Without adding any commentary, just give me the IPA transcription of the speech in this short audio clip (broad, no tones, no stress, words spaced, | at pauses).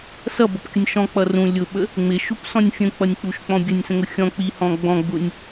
sʌbʌpkʲʊnʲ ʃɔ̃k͡pʌ rũ lʲʊɓə | ŋ͡mɪʃupsɔ̃nʲ fʲə̃k͡pʌnʲk͡puʃk͡pɔ̃ bʲənʲsə̃ŋʊ xʲɔ̃k͡pihɔ̃ ɡ͡bɔ̃ɡ͡bʊnʲ